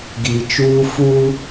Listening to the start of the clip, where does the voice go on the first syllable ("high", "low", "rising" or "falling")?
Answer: low